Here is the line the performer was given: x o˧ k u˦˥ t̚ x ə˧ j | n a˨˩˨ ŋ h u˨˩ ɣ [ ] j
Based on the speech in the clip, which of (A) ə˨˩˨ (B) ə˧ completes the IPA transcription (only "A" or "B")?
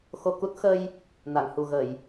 A